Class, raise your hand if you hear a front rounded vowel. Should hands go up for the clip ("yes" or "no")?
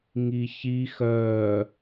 yes